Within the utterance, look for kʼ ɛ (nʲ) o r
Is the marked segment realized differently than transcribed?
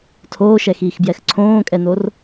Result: yes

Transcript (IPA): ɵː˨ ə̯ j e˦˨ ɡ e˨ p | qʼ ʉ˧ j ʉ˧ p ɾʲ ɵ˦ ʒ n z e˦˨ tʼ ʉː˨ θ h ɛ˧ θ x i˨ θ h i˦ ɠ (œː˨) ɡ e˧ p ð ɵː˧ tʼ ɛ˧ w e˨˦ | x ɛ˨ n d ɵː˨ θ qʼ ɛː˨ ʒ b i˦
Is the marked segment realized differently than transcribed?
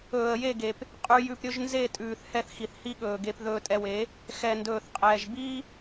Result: yes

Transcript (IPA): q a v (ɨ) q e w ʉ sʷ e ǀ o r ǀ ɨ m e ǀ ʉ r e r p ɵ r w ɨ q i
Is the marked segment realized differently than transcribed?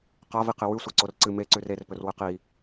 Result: yes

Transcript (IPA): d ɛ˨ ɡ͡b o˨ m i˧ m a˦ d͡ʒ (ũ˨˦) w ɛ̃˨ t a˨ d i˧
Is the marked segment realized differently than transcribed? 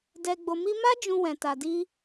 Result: yes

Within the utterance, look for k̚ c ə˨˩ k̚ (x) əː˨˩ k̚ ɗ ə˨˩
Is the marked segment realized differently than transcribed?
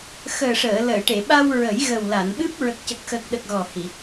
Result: no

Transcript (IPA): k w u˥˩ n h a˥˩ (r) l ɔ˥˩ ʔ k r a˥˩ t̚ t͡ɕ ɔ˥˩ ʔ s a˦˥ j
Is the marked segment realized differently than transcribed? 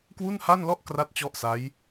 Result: yes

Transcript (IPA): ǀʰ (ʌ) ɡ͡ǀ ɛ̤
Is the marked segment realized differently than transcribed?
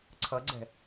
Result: no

